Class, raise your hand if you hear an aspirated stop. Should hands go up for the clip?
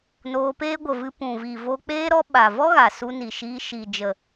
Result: no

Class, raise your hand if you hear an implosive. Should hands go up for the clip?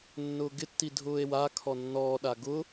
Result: yes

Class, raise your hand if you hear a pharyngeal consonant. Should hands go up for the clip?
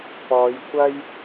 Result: no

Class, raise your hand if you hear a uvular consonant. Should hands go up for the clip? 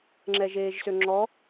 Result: no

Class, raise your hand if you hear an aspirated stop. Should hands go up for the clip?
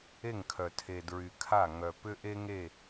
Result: yes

